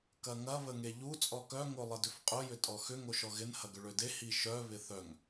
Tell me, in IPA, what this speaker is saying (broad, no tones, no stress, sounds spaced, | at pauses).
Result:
k ɐ ŋ ɐ β ə ŋ e ʎ u t͡sʼ ɔ k œ ŋ o lˠ ɪ d ʏ f qʼ ʊ j ʏ tʼ ɔ x ʏ ŋ o ʃ ɔ ɣ ɪ n h ɐ ɡ ʏ ɭ ø d e h i ʃ œ β ɪ θ œ ŋ